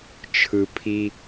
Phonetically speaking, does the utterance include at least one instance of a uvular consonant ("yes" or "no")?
no